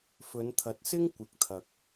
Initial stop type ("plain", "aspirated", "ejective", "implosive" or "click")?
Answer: aspirated